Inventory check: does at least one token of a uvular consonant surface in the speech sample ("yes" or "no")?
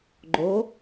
no